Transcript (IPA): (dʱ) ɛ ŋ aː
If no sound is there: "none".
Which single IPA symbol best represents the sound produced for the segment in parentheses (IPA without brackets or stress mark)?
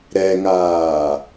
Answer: ɾ